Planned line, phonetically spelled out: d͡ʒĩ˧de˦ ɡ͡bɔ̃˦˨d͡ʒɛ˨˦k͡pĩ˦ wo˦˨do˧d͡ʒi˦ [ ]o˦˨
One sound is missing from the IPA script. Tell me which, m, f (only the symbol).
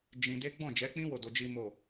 m